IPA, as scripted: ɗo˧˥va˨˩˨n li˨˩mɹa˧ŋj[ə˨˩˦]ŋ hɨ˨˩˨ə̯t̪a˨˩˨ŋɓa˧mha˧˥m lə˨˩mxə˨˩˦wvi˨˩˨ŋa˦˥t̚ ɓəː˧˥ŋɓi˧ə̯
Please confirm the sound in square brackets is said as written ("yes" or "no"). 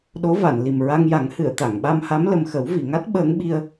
no